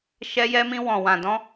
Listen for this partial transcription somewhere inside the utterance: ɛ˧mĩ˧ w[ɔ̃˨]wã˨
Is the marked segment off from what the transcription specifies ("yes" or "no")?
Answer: no